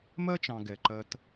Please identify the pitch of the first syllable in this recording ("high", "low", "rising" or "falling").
high